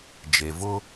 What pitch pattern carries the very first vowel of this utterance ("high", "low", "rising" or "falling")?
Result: low